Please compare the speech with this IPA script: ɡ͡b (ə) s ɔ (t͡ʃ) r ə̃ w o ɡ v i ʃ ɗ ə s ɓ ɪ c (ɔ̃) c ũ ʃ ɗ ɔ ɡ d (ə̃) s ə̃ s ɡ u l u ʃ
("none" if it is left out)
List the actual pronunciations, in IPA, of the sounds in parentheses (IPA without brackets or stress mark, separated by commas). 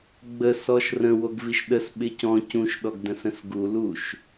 ə, ʃ, ɔ̃, ə̃